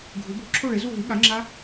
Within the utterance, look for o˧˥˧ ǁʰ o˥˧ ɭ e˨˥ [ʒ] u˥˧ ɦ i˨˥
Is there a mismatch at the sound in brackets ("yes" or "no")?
yes